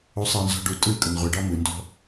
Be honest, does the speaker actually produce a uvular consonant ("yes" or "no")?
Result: yes